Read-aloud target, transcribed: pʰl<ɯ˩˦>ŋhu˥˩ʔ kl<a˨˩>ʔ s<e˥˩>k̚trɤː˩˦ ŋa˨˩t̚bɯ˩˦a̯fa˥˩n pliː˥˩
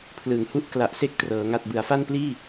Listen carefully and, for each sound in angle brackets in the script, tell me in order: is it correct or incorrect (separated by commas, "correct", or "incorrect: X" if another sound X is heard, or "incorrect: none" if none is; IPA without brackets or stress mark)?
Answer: correct, correct, correct